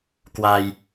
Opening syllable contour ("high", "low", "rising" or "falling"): low